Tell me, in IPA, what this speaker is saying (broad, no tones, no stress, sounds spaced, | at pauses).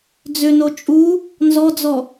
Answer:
d͡z ʏ n o t͡ʃʼ u | n z ɔ d͡z ɔ